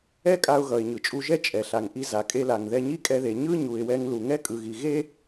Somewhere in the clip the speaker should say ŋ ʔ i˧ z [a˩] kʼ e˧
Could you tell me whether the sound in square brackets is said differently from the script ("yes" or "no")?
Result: no